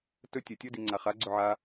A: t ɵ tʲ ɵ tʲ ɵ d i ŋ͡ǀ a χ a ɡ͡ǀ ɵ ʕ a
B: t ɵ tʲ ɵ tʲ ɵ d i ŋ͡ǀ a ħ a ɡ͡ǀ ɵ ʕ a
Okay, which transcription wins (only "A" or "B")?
A